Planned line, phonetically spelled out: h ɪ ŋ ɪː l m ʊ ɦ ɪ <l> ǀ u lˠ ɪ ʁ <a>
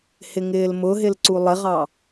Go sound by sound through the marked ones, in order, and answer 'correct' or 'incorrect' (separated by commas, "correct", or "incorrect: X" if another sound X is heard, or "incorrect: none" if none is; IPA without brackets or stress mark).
correct, incorrect: ɑ